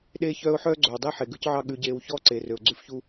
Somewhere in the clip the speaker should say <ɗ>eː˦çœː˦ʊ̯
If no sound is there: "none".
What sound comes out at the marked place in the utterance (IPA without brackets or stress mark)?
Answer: ɗ